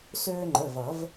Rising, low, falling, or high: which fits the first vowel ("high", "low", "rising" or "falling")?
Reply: high